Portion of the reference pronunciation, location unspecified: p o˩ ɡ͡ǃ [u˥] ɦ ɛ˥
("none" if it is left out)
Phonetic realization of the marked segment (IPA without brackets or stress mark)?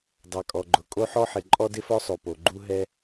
u˥